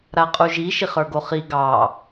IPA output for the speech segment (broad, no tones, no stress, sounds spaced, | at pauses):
ɾ a qʼ u ʒ i ʃ i χ ə˞ ɡ o χ i ɡ ɑ